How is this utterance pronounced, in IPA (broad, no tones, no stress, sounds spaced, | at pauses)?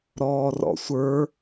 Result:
ɾ ɔː r ɔ̰ sʷ ə˞